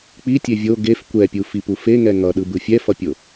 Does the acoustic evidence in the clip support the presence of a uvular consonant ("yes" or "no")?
no